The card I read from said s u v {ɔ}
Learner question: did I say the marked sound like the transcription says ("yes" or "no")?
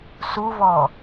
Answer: yes